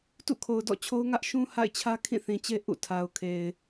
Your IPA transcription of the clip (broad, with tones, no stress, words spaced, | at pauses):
tṵ˦˨kʰo˨ʊ̯dɔ̰˦˨t͡ɕʰo˦ʊ̯ ŋä˦ʔʃũ˦ ha̰˦˨ɪ̯t͡ɕʰä˦ kʰĩ˦˨θĩ˨t͡ɕe˦ ʔṵ˦˨tʰa˨ʊ̯kʰe˨ɪ̯